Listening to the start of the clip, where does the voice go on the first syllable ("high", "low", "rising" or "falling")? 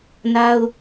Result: high